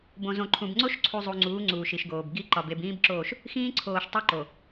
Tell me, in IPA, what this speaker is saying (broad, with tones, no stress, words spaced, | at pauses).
bõ˨zõ˨ǃʰũ˨b ŋ͡ǀo˦ʃǀʰu˨ zˤu˨ŋ͡ǀuː˨˦ ŋ͡ǀuː˨ʃi˨ʃɡoː˨b ɡi˦ ǃɒ˨b e˨bĩː˦bǁoː˦˨ʃ | xĩː˦ǀʰoː˨ʃ tˤo˦ǃo˨